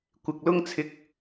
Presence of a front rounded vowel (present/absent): absent